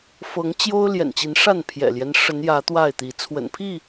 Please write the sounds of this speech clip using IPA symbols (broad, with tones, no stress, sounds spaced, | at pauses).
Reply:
f ɤ˨˦ ŋ t͡ɕ j o˦ ʊ̯ l j ɛ̰˨˩ n t͡ɕ i˨˦ n ʂ a˥˨ n pʰ j ɛ̰˨˩ l j ɛ˦ n ʂ ə˨˦ n j ä˨˦ t̪ w a˥˨ ɪ̯ t̪ i˨˦ t͡sʰ w ə̰˨˩ n pʰ i˥˨